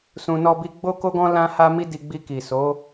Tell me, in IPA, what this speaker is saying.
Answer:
s ũ˧ n ɔ˦ b i˦ ɡ͡b o˦ k o˦ ɡ ɔ̃˦ l ã˦ h a˦ m i˦ d i˧ ɡ͡b i˧ k i˨ s o˨˦

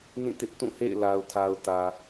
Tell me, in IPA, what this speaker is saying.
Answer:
n ĩ˦˨ t ɪ˦ ʔ t ũ˦˨ h ḛ˦˨ ɪ̯ l a˨ ʊ̯ tʰ a˨ ʊ̯ t ä˨

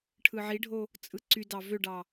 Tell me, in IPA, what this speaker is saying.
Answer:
ʈʰ ɯ ʕ i ɖʱ o | t͡sʼ ɯ ǀ y d ɑ v ø ɖ ɑ

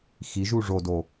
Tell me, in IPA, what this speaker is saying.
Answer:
x i ʒ u ʐ o d o

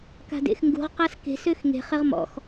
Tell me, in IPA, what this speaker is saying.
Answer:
k a̤ d ḛ x ŋ ɡ ṳ ʁ q a s k e̤ s ø x ŋ e̤ χ ɪ ʁ m ɔ̰ x

